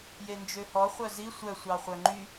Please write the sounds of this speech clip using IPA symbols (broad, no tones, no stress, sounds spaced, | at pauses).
j e n d͡ʒ ø h ɔ χʷ œ z i sʷ œ sʷ ɑ χʷ œ ŋ͡ǃ y